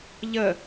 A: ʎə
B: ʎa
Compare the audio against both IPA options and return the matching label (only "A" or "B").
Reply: A